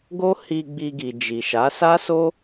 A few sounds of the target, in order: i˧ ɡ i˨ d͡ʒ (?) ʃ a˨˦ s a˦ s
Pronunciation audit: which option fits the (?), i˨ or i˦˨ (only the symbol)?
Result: i˨